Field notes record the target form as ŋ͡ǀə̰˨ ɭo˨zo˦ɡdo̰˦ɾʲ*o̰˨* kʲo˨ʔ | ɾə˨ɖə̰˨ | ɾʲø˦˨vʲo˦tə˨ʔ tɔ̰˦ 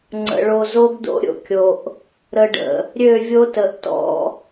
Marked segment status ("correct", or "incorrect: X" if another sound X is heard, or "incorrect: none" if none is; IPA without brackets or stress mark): incorrect: o̰˦